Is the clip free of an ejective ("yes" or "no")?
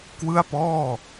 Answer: yes